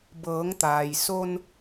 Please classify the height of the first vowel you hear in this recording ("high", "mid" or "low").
mid